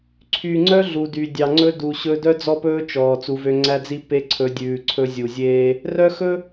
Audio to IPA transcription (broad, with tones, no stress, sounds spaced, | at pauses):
ǀʰ y˨ ŋ͡ǀ œ˦ ɮ u˨ d y˨ dʲ ɑ˨ ŋ͡ǀ ɵ˦ d u˨ ɕ ɵ˦ d œ˦ d͡z ɔ˦ p ɵː˦ t͡ʃ ɔː˨ t͡s u˨˦ v ø˦ ŋ͡ǀ æ˦ d͡z i˦ p e˦ ǀʰ ɵ˨˦ dʲ ʉː˨ ǀʰ ɵ˦ zʲ u˨ zʲ eː˦ | r œ˦ x ɵ˦